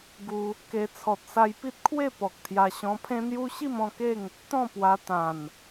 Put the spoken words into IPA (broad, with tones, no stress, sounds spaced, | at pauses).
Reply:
ɡ u˧ | k e˧ t͡sʰ ɔ˨ t̚ s a˧ j p i˦ t̚ kʰ w e˥˧ p ɔ˨ k̚ t̪ʰ j a˧ ɕ ɔ̃˧ pʰ ẽ˦ n̪ j u˦ ɕ i˥˧ m ɔ̃˥˧ k e˥˧ ŋ | t̪ ɔ̃˥˧ p w a˧ t̪ ã˨˩ n